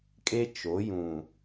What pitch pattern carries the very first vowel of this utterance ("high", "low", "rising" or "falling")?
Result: high